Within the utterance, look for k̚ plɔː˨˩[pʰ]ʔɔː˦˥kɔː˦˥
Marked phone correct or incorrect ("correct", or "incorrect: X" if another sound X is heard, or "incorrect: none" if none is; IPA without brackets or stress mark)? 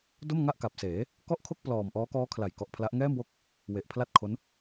incorrect: m